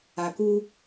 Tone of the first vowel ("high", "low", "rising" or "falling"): low